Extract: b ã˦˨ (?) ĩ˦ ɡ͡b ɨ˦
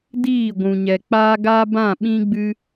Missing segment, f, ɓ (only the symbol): ɓ